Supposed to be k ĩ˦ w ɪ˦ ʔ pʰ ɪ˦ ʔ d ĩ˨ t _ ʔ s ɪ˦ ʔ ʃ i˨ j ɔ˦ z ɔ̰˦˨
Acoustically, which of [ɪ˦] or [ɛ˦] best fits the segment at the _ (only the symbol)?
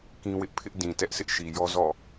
ɛ˦